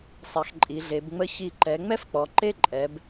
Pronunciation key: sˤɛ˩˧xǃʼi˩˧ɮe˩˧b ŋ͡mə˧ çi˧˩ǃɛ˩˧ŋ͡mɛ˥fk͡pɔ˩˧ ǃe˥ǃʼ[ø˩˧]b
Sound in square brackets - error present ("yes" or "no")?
yes